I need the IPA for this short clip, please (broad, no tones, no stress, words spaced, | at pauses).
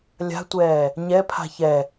lʲa̤tʷɛː | ɲɛpʰa̤ çɛ